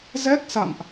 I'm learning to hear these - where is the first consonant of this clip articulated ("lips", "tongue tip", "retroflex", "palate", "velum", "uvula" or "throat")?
tongue tip